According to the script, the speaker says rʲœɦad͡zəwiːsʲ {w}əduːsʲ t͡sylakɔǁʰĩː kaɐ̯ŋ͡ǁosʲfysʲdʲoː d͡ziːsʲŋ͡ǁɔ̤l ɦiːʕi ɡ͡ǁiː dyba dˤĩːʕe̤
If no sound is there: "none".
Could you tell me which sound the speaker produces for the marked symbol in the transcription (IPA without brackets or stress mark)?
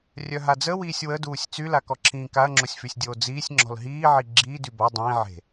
w